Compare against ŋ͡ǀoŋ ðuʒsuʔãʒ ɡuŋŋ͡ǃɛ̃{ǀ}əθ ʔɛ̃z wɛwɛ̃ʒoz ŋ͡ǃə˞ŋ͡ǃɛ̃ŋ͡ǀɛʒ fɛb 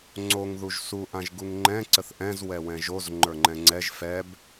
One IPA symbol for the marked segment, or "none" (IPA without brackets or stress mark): ǀ